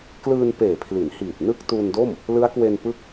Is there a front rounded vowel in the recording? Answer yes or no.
no